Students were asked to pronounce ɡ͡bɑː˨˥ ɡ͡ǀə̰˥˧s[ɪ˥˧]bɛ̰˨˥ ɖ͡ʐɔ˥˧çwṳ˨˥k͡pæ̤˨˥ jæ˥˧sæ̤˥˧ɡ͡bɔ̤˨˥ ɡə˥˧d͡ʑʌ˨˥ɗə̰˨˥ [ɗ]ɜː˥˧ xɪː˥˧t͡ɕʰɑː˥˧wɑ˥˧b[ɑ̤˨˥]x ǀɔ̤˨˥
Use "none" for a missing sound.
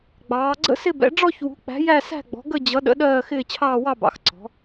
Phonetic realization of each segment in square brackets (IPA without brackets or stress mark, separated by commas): ɪ˥˧, ɗ, ɑ̰˨˥